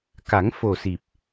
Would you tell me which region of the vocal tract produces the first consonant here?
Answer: velum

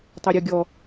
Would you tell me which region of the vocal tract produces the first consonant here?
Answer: tongue tip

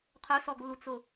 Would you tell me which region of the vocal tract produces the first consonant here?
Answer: uvula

